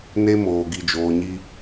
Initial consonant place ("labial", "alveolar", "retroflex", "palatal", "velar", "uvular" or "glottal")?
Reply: alveolar